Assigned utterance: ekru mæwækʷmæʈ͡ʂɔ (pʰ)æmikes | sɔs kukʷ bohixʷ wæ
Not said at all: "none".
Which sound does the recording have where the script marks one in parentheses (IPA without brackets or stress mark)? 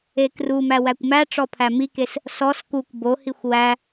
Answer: pʰ